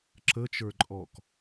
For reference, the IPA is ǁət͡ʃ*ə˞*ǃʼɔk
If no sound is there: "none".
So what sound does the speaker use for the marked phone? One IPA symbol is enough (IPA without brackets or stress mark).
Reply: ə˞